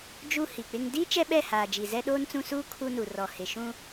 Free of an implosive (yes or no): no